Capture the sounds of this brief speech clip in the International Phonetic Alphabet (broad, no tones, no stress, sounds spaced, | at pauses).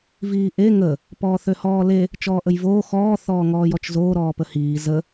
v iː ʔ e ŋ ə | p ɔː θ ø h ɔː l e | t͡ʃ ɔː ʔ ə j v oː x ɔː θ ɔː ŋ ɔː j ɔ t͡ʃ z oː ɾ ɔː p ə h iː z ə